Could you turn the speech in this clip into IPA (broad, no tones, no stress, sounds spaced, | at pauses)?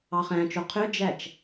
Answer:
ɑ χ æ̃ t͡ʃ o qʰ ø d͡ʒ æ t͡ʃ